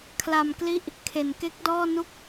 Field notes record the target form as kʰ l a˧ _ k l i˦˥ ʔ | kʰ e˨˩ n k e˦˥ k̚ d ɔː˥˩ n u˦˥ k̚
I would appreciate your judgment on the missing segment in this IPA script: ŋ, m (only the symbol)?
m